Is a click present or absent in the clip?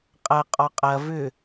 absent